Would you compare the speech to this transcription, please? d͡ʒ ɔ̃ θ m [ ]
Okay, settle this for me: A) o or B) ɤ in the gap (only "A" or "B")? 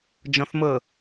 B